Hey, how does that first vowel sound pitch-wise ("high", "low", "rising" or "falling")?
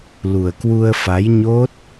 low